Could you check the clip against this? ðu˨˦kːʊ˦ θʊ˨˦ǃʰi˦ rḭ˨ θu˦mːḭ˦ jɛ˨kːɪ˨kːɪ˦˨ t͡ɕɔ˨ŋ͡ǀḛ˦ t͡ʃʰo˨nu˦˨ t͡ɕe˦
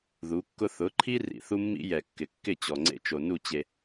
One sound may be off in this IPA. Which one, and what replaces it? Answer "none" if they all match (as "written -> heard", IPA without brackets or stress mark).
t͡ʃʰ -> t͡ʃ